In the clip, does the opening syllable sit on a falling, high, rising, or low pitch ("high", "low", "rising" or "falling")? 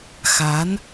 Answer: rising